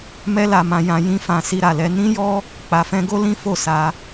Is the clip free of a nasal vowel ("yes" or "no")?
no